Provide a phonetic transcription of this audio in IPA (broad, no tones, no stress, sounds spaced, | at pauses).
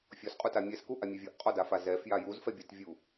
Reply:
fʲ ɔ s qʼ u t a mʲ ɛ s k u ʔ a mʲ ɛ vʲ ɔ ʔ qʼ ɔ d a f a z ɛ f j a j u z f ɛ bʲ æ t vʲ u